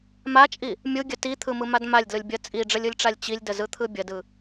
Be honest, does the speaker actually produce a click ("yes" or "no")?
no